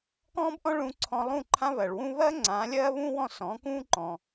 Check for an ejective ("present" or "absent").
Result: absent